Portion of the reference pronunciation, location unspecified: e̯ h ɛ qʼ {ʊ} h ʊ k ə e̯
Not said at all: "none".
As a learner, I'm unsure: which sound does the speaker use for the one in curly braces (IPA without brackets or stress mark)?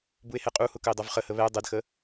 u